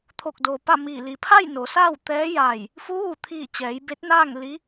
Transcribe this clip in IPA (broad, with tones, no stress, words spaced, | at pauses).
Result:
t̪ʰo˧˩k̚doː˩ pa˥˨miː˧˩ li˩pʰa˥˨j no˩˧saː˥˨w t̪ɛː˧˥ ja˧˩j | fu˧˥ʋu˧˩t̪ʰiː˧˩ t͡ɕɛː˩˧jbe˧˥t̚naː˥˨ŋ li˧˥